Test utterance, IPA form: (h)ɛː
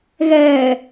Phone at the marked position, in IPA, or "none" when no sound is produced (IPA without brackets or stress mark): ɣ